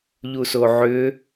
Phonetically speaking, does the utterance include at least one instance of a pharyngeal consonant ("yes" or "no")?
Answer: yes